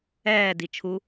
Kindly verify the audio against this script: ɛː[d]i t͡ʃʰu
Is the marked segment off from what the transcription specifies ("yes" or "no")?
no